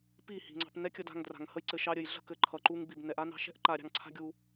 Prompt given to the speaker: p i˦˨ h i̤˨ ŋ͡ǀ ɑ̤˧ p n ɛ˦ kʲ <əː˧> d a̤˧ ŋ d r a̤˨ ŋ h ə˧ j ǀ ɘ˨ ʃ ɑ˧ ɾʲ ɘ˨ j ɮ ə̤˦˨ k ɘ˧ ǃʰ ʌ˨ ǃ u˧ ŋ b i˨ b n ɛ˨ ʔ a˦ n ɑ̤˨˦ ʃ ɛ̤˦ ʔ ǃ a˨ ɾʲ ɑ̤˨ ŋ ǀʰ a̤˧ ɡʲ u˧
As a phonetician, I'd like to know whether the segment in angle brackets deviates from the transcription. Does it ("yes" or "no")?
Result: yes